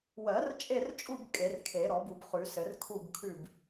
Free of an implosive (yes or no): yes